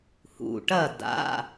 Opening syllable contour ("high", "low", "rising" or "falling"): low